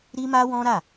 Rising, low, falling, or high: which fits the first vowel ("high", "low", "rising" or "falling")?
high